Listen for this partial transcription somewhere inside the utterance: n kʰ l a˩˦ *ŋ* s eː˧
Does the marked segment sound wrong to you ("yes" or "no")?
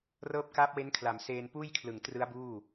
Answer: yes